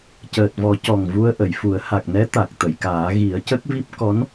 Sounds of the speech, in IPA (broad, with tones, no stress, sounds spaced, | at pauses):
c əː˨˩ t̚ v ɔ˨˩˦ c ɔ˨˩ ŋ v u˧ ə̯ ʔ ə˨˩˨ j f u˨˩˦ ə̯ h a˨˩ k̚ n ɛ˧˥ t̪ a˨˩ k̚ t̪ ə˨˩˨ j k aː˨˩˦ ɣ i˨˩˦ ə̯ c ə˦˥ k̚ v i˦˥ p̚ k ɔ˧˥ n